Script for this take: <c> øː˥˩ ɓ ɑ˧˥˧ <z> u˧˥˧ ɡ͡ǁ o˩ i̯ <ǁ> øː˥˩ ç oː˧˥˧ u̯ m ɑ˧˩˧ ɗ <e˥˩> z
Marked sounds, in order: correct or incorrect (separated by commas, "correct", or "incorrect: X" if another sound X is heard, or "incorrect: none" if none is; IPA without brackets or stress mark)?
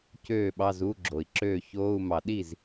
correct, correct, correct, incorrect: i˥˩